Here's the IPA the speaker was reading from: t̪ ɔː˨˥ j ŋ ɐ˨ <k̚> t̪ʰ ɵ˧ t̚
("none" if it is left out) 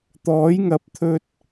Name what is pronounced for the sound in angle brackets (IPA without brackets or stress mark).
p̚